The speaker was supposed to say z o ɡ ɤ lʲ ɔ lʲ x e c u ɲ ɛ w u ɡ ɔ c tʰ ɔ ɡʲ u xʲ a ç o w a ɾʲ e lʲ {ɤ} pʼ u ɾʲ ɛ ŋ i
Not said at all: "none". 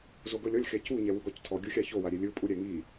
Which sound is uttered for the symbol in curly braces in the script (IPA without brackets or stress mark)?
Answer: ɯ